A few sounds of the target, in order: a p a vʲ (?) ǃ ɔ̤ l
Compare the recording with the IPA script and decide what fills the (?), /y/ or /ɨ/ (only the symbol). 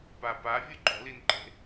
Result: ɨ